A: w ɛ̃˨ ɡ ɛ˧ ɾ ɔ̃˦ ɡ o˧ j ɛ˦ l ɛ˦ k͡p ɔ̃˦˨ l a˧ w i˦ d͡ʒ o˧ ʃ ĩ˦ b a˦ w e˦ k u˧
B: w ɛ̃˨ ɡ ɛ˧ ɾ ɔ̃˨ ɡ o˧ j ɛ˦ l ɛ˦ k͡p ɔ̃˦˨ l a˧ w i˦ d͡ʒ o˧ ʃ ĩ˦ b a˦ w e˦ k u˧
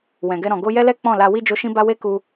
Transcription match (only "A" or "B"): B